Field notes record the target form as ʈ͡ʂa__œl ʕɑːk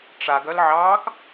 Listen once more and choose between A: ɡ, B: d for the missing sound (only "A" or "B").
A